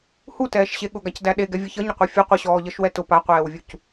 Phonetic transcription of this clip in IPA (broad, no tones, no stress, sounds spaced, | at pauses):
h u t ɛː ʃ ɕ e ɠ ʊ ɡ a c d æ ɗ e ɡ ɛ vʲ ʌ ç ʌ ɲ ə qʷ e fʲ ʊ qʷ ə ɕ ɔː ʎ ʌ ʃ w ɛ t ʊ p a qʷ ɛː w vʲ u c